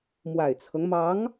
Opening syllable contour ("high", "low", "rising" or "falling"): low